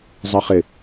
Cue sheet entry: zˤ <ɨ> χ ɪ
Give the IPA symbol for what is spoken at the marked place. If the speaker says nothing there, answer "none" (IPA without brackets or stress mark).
ɨ